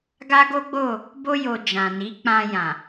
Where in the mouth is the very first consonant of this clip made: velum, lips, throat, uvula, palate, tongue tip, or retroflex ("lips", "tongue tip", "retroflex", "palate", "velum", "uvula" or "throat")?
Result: velum